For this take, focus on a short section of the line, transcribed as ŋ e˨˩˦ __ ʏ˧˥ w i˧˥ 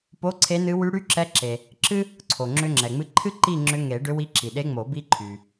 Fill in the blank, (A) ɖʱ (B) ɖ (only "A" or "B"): B